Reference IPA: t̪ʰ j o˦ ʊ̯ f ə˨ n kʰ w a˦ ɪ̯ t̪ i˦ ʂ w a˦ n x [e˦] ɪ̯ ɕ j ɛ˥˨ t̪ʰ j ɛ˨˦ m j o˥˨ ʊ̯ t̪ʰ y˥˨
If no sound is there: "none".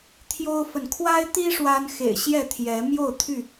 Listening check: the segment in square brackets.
ḛ˨˩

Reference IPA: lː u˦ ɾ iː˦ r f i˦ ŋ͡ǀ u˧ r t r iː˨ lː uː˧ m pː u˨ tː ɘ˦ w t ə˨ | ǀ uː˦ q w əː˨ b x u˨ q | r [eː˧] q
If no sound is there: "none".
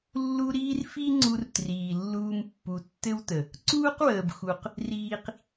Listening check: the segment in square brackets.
iː˧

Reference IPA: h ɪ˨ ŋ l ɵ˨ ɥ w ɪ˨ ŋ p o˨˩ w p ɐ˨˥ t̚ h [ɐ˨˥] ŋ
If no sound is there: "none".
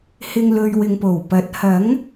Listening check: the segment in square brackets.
ɐ˨˥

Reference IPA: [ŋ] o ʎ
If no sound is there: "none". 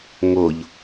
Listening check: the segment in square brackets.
ŋ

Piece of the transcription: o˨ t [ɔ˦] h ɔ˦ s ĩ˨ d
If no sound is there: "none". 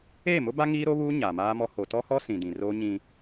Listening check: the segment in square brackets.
ɔ˦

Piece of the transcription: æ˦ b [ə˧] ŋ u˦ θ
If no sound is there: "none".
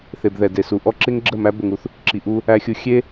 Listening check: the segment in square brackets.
ə˧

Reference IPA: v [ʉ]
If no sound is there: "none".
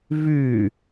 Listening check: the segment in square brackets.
ʉ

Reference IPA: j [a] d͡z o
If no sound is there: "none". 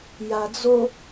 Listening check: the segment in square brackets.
a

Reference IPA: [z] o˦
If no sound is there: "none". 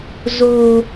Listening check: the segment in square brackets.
z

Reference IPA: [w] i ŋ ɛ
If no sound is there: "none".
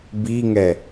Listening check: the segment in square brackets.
b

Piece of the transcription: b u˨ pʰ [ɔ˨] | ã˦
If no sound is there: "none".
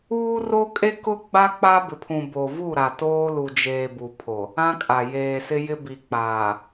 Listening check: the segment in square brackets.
o˨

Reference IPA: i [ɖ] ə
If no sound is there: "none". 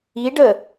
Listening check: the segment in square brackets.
ɖ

